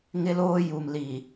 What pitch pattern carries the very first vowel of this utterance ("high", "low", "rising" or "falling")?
high